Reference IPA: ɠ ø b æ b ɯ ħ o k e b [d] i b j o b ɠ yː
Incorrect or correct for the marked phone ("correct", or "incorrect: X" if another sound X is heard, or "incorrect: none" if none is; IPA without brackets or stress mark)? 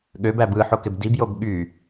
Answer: correct